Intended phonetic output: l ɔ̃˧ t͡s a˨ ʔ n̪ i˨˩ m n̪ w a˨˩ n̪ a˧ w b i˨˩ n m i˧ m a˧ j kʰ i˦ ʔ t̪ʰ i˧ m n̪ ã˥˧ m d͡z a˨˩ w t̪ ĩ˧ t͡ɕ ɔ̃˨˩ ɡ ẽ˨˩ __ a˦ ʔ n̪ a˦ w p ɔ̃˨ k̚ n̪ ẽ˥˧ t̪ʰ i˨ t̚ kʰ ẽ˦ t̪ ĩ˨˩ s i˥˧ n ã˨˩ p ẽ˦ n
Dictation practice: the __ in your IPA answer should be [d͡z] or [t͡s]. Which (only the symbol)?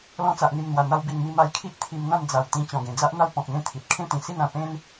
d͡z